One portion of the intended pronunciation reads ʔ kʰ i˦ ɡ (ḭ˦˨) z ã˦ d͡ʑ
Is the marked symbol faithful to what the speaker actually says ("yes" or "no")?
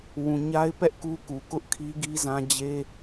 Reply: no